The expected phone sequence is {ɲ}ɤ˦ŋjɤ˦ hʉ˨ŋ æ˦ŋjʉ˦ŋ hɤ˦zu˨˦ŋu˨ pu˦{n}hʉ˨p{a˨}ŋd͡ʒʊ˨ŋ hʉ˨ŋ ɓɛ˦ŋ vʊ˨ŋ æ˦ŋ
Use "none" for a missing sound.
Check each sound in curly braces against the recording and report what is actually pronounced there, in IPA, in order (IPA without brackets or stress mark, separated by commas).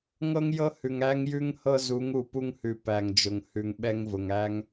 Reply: ŋ, ŋ, æ˨